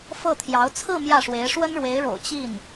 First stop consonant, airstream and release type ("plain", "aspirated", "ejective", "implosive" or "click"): aspirated